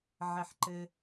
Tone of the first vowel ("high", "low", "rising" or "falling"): low